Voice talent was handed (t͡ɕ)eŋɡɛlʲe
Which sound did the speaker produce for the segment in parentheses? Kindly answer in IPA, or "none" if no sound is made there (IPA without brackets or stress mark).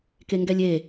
k